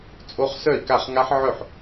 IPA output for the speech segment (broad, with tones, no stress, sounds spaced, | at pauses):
t͡sʼ o˦˥ χ s œ˥˩ i̯ k a˥˩ χ ŋ a˦˥ ħ ʕ œ˥˩ ħ